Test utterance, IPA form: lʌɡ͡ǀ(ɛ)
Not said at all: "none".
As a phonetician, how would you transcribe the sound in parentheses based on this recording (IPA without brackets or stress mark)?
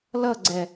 ɛ